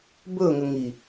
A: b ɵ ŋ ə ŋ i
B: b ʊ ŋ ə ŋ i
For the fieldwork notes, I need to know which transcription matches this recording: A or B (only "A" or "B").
A